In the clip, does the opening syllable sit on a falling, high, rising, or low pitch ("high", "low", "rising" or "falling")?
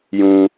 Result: low